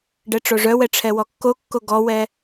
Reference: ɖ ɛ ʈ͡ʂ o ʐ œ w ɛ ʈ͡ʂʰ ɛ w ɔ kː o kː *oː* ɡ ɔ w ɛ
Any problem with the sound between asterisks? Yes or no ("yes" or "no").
yes